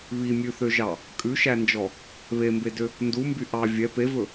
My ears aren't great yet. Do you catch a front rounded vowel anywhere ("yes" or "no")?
yes